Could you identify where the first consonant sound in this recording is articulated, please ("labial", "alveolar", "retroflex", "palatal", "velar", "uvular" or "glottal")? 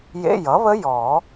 palatal